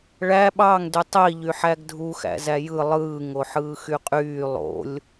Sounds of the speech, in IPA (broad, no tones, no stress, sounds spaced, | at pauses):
ɭ æ ɓ ɑ ŋ d y tˤ i ʎ y ħ æ ɡ dʱ u x æ̰ z æ j ɯ lˠ ɯː ŋ o ħ ɯː x y qʼ yː lˠ o̰ lʲ